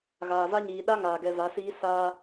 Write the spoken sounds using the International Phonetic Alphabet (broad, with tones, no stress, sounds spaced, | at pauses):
ɣ aː˨ v a˦ ɲ iː˨ ɗ a˦ ŋ aː˨ ɡ ɛ˨ v a˨˦ s iː˦ s aː˦